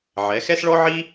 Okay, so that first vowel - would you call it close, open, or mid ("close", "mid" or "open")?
mid